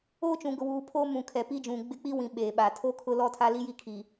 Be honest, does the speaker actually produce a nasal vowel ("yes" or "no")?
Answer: yes